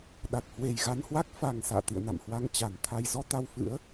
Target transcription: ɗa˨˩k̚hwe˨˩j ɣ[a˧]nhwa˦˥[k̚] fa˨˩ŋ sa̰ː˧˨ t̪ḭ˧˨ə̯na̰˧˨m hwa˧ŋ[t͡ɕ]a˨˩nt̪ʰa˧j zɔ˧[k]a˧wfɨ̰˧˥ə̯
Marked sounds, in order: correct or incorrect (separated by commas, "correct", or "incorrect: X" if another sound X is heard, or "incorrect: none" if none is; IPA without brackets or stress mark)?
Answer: correct, correct, correct, incorrect: t̪